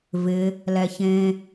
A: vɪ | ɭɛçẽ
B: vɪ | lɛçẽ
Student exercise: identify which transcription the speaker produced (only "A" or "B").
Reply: B